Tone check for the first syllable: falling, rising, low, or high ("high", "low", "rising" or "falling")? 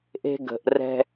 high